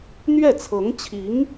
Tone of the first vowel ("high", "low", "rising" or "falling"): falling